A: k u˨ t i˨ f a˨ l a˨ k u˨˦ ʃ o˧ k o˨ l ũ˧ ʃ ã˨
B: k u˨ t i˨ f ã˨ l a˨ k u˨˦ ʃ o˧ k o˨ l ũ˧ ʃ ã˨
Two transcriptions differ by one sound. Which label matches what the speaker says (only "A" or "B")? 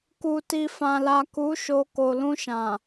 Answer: B